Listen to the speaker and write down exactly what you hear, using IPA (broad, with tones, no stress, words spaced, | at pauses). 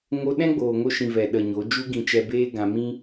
ŋo˧ ɗɛ̃˦ɡ͡boː˨ŋo˧ʃĩ˨ vɛ˨ ɗə˨ ɲo˨˦ d͡ʒu˦ɡĩ˧t͡ʃɛ˧beː˦ ɡã˧mĩ˦